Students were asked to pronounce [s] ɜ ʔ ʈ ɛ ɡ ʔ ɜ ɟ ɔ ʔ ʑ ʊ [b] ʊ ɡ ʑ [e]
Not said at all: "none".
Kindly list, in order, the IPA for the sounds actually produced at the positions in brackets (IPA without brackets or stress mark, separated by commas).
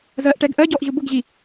z, b, i